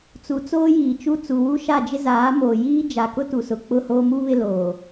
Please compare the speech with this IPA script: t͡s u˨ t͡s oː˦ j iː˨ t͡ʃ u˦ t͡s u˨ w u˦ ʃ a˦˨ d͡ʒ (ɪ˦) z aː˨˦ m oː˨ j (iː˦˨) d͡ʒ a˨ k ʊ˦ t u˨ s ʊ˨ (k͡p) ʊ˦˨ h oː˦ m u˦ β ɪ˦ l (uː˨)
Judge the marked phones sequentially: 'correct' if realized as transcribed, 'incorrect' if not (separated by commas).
correct, incorrect, correct, incorrect